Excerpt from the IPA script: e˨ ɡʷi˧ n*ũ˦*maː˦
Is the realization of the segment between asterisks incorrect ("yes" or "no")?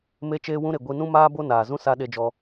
no